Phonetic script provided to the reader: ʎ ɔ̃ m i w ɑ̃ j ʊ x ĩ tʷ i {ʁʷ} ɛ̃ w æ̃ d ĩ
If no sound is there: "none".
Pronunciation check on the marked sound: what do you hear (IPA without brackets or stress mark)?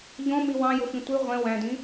ʁʷ